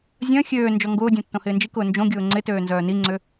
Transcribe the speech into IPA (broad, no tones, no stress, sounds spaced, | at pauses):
zʲ œ̃ xʲ øː n d͡ʒ ɔ ŋ ɡ ʊː dʲ ɔ̃ tː õ h ɪː n d͡ʒ i k ʊː n d͡ʒ õ ɡʲ ʊː ŋ͡ǀ ɪ t øː n z œː n i ŋ͡ǀ ʏ